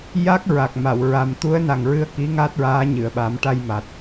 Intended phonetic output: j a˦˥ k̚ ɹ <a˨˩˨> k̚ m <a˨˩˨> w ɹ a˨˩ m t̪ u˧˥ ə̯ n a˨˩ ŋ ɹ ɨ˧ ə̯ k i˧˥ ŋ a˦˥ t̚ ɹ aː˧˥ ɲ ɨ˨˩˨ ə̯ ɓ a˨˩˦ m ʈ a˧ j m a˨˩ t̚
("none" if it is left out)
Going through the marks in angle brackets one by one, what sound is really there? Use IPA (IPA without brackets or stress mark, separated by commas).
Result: a˨˩, a˨˩˨